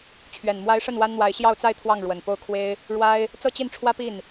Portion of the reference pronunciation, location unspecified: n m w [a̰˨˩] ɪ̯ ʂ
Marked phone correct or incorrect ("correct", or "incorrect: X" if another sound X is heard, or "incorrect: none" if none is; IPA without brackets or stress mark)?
incorrect: a˧˥